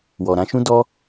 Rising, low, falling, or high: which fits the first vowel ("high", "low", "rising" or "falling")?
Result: low